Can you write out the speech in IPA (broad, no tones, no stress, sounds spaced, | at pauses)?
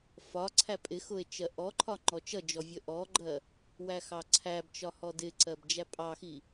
f ɒ ǀʰ æ pʼ ɪ x ʊ e̯ t͡ʃ ɜ ʔ ɔ ǃʰ ɒ ŋ͡ǃ ɔ t͡ʃ ʌ d͡ʒ ɔ vʲ ə ʔ ɔ ɡ͡ǃ ɜ | w æ x ɑ ǀʰ æ b t͡ʃ ɒ h ɔ d ɪ ǀ ɜ b d͡ʒ æ pʼ ɑ x i